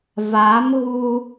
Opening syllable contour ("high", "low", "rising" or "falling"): rising